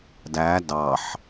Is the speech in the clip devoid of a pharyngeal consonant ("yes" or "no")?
no